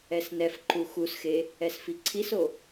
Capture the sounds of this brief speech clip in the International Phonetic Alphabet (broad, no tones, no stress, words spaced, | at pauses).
ɛsnɛfǃu xusxe | ɛsfiǀʰiso